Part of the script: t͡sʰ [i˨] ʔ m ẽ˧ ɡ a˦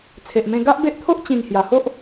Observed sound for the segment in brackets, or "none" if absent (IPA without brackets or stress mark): e˨